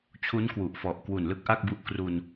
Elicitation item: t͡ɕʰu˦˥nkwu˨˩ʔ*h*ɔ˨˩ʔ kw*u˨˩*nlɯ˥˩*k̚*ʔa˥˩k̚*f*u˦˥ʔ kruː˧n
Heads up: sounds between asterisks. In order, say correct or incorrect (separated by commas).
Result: incorrect, correct, correct, incorrect